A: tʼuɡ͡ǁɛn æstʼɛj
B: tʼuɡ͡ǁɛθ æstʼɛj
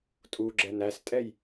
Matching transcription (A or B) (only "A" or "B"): A